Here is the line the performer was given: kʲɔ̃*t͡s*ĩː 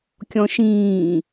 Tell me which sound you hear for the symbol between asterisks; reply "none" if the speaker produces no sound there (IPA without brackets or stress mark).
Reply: ʃ